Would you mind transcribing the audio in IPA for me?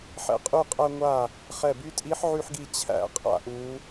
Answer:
ħ ɛ̰˧˥ qʼ y˥˩ qʼ æ˥ ŋʷ a˥˩ | χ ɛ˧˩ b y˧˥ tʼ i˧˥ ħ ʕ y˥ ħ ɡ i˥˩ t͡ɕʰ æ̰˥˩ qʼ a̰˥ ʔ u˧˥

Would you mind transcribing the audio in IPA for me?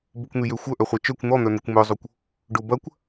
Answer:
b ʊ kʷ n̪ y j ø xʷ œ ʔ œ χʷ a t͡ʃ œ kʷ n̪ ɔ n̪ œ n̪ ʏ kʷ m œ zˤ o kʷ | ɖ ʊ b ɐ kʷ

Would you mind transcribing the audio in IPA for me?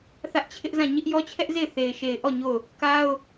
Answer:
θ ä˦ ʔ t͡ɕʰ ɪ˦ ʔ z ã˦˨ ɲ ɪ˦ ʔ j ɔ˦ t͡ɕʰ ɛ˦ ʔ z e˦˨ ɪ̯ θ e˨ ɪ̯ ʃ e˨ ɪ̯ ʔ ɔ˦˨ ɲ o˦˨ ʊ̯ | k a˦ ʊ̯

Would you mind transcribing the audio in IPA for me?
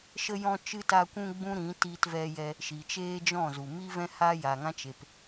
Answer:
ʃ ə˧ j ɔ̃˧ t͡ʃ ɨ˧ t a˧ kʷ ũ˧ ɡ͡b ũ˦ ɾ ĩ˨˦ t iː˧ t v ɛ˧ j ɛ˧ | ʃ i˨ t͡ʃ eː˦ d͡ʒ ɔ̃˦˨ z u˨ m i˦ v ɛ̃˦ h a˦ j a˨ ŋ ã˦ t͡ʃ e˨ p

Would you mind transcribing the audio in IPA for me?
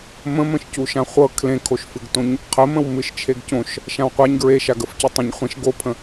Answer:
m ə̃ m ə̃ ʃ c u ʃ ã χʷ ɤ kʰ l ẽ kʰ o ʃ f ɨ ɡ t õ ɲ | qʰ ə m ə̃ w m ɨ ʃ t͡ʃʰ e ɡ c õ ʃ | ʃ ã w qʷ a ɲ ɡ ɹ e ʃ a ɡ ə f c ɵ tˤ ẽ ɲ χʷ ẽ ʃ ɡ o pʰ ə̃

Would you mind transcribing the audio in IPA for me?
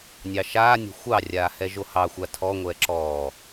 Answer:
nʲ ɑ ʃ aː nʲ o̤ xʷ ɑ rʲ aː h ɛ ʒ o h ɑ xʷ a tʰ ɔː ŋʷ ɛː ǁ ɔː

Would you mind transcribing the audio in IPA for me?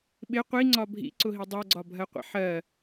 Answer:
ɓ ɪ qʷ i ŋ͡ǀ ɒ bʱ ḭ ǀ ʊ ɦ i dˤ ɜ ɡ͡ǀ ɒ bʱ ɜ qʷ ɛ̰ ħ ɜ

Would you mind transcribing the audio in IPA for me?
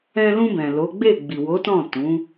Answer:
ɛ̃˧ l ũ˧ b ɛ̃˨ l o˨˦ ɡ͡b e˦˨ ɡ͡b i˨ w o˨˦ t ɔ̃˦˨ t ũ˨˦

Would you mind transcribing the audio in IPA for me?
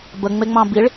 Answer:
b ə ŋ͡m e ŋ͡m ɑ̃ b i ɭ

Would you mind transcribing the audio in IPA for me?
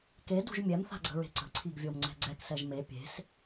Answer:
k e d ṳ ʒ mʲ ɛ m θ a̤ ɡ͡ǀ ə̤ ɹ e̤ ǀ ə̤ ǀʰ i ɡ vʲ o m ŋ͡ǀ ɛ̤ ɡ͡ǀ ɛ k s ɛ ʒ m e pʲ e̤ s

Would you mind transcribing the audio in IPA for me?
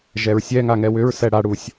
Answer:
ʒ ɛ ɹ sʲ ɛ ŋ a ŋ ɛ w ʏ ɹ s ɛ ɽ a ɽ u sʲ

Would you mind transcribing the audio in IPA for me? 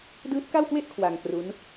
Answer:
d ɯː˦˥ t̚ k a˥˩ w k w e˥˩ ʔ kʰ w a˧ ŋ k r u˦˥ n

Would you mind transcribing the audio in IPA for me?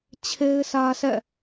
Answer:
t͡ɕʰ e˦ ɪ̯ s ä˦ sʰ ɛ̰˦˨

